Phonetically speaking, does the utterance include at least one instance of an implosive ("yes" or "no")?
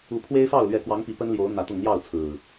no